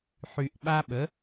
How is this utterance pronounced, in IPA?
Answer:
ħy˨˩ʔɓa˦ɓə˩˥

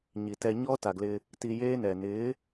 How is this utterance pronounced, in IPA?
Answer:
ɲi˨tɛ˧ ɲɔː˦ ta˨ɡlɪ˧ | ti˧jeː˦nɛ˨ nɪː˨˦

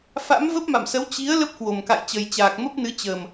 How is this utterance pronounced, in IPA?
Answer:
fa̰˧˥mvə˦˥p̚ma̰˧˨msə˨˦w t͡ɕi˨˦ə̯ lə˦˥p̚kwo˨˩mka̰˧˨j t͡ɕə˨˩jt͡ɕaː˨˩k̚mə˦˥p̚nɨ˨˦ t͡ɕəː˨˩m

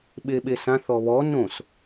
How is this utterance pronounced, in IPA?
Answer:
ɓeɓesãθ ɔβɔ nõs

